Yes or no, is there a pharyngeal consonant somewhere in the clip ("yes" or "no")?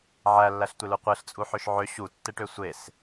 yes